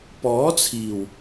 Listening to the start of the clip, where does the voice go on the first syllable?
rising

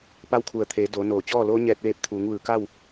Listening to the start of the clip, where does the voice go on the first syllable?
rising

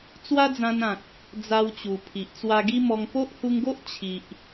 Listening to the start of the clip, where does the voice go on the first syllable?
high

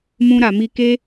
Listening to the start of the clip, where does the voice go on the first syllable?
high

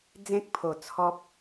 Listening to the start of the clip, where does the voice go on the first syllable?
high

